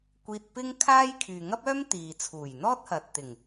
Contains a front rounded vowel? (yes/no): yes